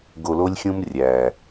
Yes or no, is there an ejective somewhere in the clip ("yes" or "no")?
no